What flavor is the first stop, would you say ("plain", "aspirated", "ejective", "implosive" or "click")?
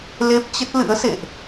plain